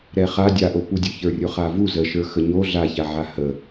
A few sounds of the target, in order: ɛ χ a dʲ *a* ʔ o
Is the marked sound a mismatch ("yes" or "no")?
no